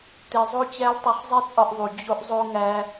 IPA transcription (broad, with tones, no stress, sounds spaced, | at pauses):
t e˧ zˤ o˦ t͡ɕ æ˦ l tˤ u˧ χ zˤ e˦ t͡sʼ ɒ˧ ʔ ðˤ u˨ d͡ʑ o˧ ʔ zˤ o˧ ŋ æ˧